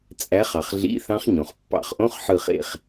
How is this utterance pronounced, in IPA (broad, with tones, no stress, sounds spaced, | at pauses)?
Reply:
t͡sʼ æ˨˦ χ ɑ˩ χ ɮ ḭ˧˥˧ θ ɑ̃˦˥ χ ɲ õ˩ χ pː ɑ̰˧˩˧ χ ʔ õ˧˥˧ χ ħ ɯ˦˨ χ ḛ˦˨ χ